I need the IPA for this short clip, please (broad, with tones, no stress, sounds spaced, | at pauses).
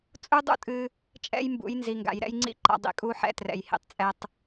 t͡sʼ u˦ dˤ ṵ˦ tʼ ɨ˧ | t͡ʃʼ ɛ̰˦ j m b ṵ˨˦ j n z i˨ ŋ ɡ a̰˨ j ɾ ɛ̰˦ j ŋ͡ǀ ḭ˦ ǃ a̰˧ dˤ ḭ˧ kʼ u˦ ħ ɛ̰˦ t r ɛ̰˨ j h ḭ˧ tˤ t͡sʼ ɛ˧ tˤ